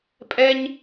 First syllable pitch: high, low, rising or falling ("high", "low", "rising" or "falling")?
high